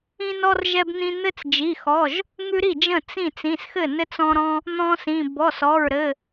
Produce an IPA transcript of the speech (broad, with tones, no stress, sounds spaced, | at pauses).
ĩ˦ n ɔ˦ r ʒ ɛ˦ b n̪ ĩ˦ n̪ ɘ˦ t͡s d͡ʒ i˩˧˩ x ɔ˩˧˩ ʒ | ŋ ʉ˦ ɾ i˥˩ d͡ʒ ə̃˥˩ t͡s ĩ˥˩ t͡s ĩ˩˧˩ s x ɘ˥˩ n ɘ˦ t͡s ɔ̃˦ ɾ ɔ̃˦ | n̪ ɔ̃˦ s ĩ˩˧˩ b ɔ˩˧˩ s ɔ˩˧˩ ɹ ɾ ɘ˩˧˩